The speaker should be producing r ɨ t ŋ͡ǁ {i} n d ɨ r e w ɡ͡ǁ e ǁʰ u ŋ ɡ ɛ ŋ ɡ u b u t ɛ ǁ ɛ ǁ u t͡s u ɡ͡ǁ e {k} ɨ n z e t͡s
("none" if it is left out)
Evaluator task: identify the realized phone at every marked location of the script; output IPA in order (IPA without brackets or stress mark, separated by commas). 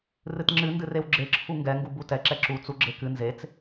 ɨ, k